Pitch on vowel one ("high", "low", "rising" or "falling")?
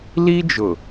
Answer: high